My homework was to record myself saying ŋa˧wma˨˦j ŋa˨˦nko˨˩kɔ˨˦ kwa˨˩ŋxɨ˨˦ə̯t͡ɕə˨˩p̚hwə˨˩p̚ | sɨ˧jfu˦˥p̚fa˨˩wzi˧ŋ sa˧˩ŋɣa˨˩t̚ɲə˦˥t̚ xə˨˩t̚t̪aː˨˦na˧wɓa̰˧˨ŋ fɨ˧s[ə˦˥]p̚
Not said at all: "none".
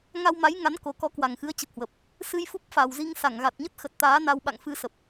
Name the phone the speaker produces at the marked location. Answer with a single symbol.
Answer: ə˨˩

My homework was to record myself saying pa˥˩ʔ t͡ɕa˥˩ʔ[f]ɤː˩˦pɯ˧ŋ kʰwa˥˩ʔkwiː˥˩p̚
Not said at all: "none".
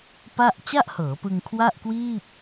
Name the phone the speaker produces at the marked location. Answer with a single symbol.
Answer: h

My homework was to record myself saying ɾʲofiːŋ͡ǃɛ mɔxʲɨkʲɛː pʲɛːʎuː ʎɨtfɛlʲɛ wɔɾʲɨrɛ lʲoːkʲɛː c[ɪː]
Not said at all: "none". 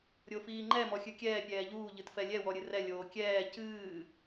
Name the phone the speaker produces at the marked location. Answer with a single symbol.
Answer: ɨː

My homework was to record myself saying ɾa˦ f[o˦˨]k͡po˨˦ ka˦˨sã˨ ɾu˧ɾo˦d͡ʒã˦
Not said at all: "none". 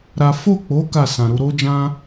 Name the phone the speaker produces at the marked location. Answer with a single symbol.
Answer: o˦˨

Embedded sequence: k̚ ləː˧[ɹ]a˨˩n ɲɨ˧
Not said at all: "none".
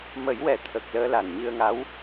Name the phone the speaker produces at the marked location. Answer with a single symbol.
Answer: l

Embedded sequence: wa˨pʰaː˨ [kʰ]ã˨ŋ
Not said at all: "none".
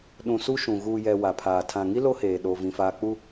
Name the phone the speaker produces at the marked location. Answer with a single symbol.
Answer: tʰ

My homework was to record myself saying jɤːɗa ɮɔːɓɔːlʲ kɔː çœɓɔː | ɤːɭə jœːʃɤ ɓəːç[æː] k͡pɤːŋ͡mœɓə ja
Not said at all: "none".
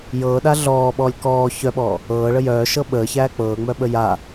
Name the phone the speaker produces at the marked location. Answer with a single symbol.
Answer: æː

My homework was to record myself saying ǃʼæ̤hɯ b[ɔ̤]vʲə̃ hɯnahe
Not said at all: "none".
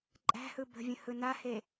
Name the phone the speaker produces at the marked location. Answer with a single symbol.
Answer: ə̤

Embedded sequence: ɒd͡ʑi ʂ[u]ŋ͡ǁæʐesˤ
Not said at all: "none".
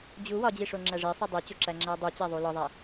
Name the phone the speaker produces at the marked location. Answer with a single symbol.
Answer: o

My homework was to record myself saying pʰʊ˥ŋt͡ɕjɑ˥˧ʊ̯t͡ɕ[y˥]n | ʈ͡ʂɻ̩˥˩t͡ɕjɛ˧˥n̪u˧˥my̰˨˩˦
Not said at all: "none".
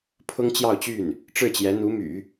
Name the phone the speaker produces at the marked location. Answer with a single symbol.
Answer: y˥˩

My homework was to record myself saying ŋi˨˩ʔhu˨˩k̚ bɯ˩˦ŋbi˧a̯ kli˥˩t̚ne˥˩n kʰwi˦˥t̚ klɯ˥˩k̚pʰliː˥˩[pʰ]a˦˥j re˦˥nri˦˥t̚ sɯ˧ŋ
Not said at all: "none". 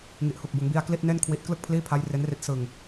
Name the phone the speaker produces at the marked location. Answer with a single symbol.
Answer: pʰ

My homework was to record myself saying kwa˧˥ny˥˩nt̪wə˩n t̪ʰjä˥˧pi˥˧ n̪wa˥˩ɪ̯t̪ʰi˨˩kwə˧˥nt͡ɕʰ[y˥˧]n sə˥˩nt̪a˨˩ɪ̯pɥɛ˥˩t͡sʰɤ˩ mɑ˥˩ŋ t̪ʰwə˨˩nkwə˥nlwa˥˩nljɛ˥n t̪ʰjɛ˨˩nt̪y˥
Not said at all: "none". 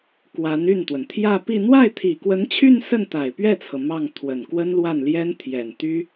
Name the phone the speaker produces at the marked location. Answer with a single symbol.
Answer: y˥˧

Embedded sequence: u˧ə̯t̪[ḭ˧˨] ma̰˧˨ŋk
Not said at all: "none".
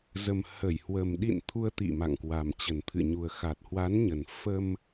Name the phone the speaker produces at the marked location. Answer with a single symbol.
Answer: ḭ˧˨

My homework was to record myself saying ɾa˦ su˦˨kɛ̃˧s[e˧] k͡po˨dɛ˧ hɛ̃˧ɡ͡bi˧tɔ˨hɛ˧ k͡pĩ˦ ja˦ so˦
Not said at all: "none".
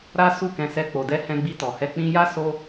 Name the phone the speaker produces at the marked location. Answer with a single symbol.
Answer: ɛ˧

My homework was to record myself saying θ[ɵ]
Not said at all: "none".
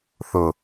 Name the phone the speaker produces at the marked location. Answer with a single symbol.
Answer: ʊ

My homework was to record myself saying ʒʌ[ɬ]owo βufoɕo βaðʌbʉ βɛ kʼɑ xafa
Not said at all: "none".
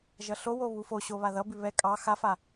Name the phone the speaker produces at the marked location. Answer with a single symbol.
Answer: ɬ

